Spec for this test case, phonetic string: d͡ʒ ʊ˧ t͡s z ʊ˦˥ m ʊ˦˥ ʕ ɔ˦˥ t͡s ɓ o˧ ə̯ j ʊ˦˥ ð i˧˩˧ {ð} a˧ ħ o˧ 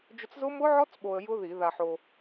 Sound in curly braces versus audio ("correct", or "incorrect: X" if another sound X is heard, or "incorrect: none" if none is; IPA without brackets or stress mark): correct